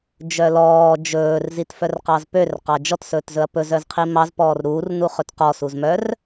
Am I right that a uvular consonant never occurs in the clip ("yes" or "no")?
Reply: no